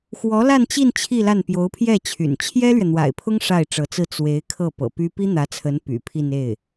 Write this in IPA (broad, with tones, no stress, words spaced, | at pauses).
xwɔ˧˥la˥˧nt͡ɕi˥˧n t͡ɕʰi˥˧la˥˩n pjo˧˥ʊ̯pʰjɛ˥˩t͡ɕʰy̰˨˩n t͡ɕʰjɛ˥lɥɛ˨n̪wa̰˨˩ɪ̯pʰʊ˥ŋ ʂa˥˩ɪ̯ʈ͡ʂɤ˧˥t͡sɹ̩˥˩ t͡swe˧˥ɪ̯ kʰɤ˥˩pɤ̰˨˩py˥ pi˥n̪ä˧˥t͡sʰə˧˥n py̰˨˩ pʰi˥˧n e˥˩ɪ̯